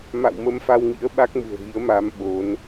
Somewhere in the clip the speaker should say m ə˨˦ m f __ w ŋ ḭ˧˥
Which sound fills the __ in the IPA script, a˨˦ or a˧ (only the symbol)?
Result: a˧